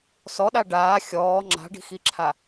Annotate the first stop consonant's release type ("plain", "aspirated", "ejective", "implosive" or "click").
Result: implosive